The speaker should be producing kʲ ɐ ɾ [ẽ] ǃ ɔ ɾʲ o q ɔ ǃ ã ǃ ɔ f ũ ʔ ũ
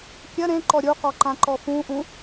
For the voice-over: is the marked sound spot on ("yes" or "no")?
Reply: yes